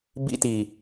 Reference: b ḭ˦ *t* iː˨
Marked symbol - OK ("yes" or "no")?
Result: yes